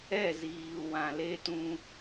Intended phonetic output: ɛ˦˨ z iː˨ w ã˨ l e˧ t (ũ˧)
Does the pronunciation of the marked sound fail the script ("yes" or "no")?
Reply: no